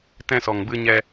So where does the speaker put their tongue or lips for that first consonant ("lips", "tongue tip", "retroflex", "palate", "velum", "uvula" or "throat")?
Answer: tongue tip